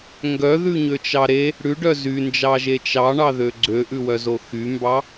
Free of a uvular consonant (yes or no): yes